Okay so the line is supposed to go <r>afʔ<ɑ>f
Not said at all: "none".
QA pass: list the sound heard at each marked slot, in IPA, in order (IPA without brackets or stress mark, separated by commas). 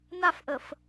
n, ə